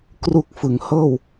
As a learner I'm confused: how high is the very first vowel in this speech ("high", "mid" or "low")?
high